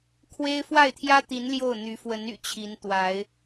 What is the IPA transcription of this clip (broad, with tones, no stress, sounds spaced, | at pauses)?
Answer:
kʰ w e˥ ɪ̯ f w a˥˩ ɪ̯ t̪ʰ j ä˥ t̪ i˧˥ n l j o˥˩ ʊ̯ n̪ y˧˥ f w ə˧˥ n y̰˨˩ t͡ɕʰ i˧˥ n t̪ w a˧˥ ɪ̯